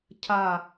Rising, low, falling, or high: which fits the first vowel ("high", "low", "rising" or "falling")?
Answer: falling